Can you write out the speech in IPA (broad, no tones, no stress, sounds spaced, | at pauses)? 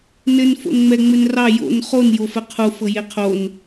n ɘ n f o̰ n ŋ͡m ɛ ŋ͡m ɘ n r ɑ j o̰ n χ o n j o f ɘ qʰ u f ɤ j e qʰ o n